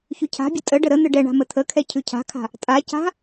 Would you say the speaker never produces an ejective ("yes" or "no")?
no